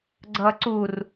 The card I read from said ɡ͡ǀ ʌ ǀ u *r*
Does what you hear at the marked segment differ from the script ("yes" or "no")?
no